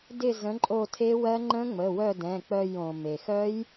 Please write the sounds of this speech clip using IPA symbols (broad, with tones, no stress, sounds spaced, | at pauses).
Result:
d ɪ˦˨ z ə̃˨˥ ǃʼ o˦˨ tʰ e˦˥ w ɜ˦˥ ŋ͡ǃ ə̃˦˥ ŋ͡m ə˩˧˩ w œ˦˨ d ɛ̃˩˧˩ k͡p œ˦˨ j õ˩ m e˩ x œ˦˥ j